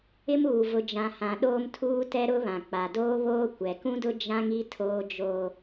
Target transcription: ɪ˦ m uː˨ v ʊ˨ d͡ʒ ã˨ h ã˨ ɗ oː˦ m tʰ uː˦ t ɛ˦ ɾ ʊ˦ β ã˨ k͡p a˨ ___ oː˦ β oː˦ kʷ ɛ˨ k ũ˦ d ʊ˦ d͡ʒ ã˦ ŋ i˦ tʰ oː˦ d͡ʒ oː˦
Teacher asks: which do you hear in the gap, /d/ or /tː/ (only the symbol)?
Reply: d